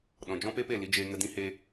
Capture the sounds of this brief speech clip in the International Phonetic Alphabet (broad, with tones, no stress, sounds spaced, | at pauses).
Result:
ɗ ɔ̃˨ d͡ʒ ɔ̃˦ p e˦ p e˦˨ l i˧ d͡ʒ eː˧ ŋ ə˧ d ĩ˦ h e˦